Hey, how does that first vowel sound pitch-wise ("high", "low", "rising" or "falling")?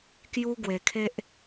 high